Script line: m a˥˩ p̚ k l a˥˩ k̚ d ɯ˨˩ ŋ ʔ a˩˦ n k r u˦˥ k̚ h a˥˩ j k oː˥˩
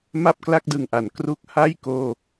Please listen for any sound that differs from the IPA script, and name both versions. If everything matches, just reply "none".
none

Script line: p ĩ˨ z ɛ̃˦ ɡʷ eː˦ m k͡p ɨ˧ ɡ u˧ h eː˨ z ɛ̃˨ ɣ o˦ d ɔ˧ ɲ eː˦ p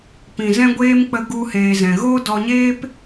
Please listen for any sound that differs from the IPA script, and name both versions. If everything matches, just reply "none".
ɨ˧ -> ə˧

